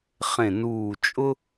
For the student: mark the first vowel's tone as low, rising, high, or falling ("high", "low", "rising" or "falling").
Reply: low